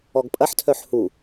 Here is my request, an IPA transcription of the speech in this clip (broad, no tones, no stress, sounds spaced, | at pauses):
ɔ ɡ pʼ ɐ ħ tʰ œ ħ h u